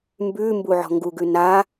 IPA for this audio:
m b ʉ m b u ʕ ɔ̤ ŋ ɡ u ɡ ʉ n a

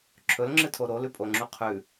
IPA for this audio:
ǁʰ ɵ l ŋ͡ǁ ɨ tʰ o ɾ o l ʉ pʼ o ŋ͡ǁ u qʰ ʉ

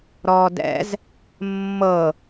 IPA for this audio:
ɾ ɔː d ɛ̰ z | mː ɤ

